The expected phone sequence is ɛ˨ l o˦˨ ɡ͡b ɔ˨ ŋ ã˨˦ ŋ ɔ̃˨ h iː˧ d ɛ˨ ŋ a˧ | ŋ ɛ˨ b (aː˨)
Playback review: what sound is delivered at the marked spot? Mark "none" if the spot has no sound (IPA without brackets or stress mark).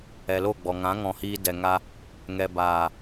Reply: aː˨